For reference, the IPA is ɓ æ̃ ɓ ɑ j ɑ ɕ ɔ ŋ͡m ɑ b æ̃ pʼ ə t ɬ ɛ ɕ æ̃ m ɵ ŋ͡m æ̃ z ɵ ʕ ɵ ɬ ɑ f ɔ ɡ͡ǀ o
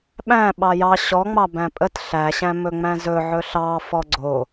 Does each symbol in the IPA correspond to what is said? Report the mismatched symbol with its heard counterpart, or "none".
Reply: ɛ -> æ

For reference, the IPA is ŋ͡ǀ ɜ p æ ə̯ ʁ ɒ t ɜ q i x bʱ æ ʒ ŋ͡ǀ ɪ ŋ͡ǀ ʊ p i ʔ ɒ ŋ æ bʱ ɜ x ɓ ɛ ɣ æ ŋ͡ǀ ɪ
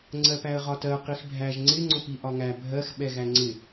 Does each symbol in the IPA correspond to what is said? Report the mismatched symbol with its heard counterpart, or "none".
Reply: none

